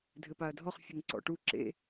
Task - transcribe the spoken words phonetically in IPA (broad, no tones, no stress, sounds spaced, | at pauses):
dʱ ɘ p a ɐ̯ dʱ ɔ χ fʲ ɘ ŋ ǀ ɔ̰ ʈ u ǁ ḛ